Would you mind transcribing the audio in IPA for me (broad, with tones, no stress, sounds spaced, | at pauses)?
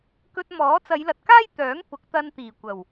k ɵ˧ t̚ m ɔː˨˥ t͡s ɐ˨˧ j l ɐ˨ t̚ k aː˥ j t̪ œː˨˥ ŋ p ʊ˨˥ k̚ t̪ ɐ˧ n t̪ iː˨˩ kʷ ɐ˨˩ w